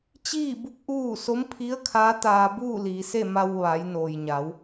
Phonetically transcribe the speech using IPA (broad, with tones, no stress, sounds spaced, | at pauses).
t͡ɕ iː˥˨ b u˧˥ k̚ ʔ uː˥˨ s o˧˥ m pʰ i˧˥ ə̯ kʰ aː˧˥ t̪ aː˧ b uː˥˨ l iː˩˧ s e˥˨ m a˧ w ʋ a˩˧ j n oː˩ j ɲ a˩˧ w